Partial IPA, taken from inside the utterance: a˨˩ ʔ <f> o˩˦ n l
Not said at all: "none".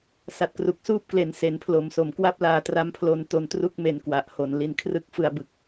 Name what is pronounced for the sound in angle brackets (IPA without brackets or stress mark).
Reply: h